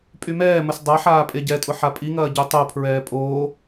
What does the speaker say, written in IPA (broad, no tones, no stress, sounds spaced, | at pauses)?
pʼ y m ɛː m ə s dˤ a ħ aː pʼ e ɟ ɛ tʼ ʊ ħ a pʼ i ŋ ɐː ɟ ø tˤ o pʰ ɹ ɛː pʼ oː